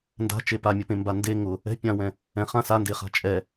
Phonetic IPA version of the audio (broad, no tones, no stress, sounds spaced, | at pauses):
n d a̤ t͡ʃ e p a mʲ ʊ p ẽ m b a n d e ŋ ʊ | ɛ̤ pʲ ã w ɛ̃ | ɛ̃ χ ã s a n d e χ a̤ t͡ʃʼ ɛ